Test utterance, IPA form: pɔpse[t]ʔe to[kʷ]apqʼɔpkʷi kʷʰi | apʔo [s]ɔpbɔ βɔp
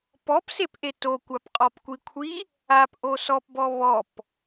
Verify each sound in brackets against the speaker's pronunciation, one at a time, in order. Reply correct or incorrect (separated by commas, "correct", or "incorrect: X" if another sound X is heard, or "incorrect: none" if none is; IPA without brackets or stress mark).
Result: incorrect: p, correct, correct